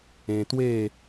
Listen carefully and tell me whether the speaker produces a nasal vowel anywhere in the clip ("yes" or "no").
yes